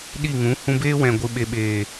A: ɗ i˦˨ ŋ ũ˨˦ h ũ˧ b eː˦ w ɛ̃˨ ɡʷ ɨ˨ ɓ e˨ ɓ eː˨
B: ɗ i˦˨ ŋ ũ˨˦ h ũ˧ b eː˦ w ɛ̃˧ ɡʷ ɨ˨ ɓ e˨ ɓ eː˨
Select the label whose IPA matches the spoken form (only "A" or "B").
A